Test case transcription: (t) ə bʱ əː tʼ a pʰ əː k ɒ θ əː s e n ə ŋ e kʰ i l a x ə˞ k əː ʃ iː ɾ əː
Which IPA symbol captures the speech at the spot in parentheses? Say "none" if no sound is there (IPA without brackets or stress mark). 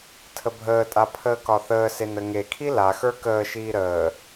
tʰ